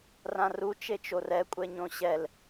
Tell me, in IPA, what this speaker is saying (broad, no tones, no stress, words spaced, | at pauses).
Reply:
rãru t͡ʃet͡ʃorɛ kʷʼɛɲõɕɛl